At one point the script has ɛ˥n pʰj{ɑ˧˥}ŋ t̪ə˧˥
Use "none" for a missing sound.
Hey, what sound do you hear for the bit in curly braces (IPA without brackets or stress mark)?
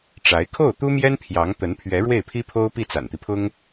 ɑ˧˥